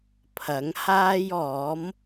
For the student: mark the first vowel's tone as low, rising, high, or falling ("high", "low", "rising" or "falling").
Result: rising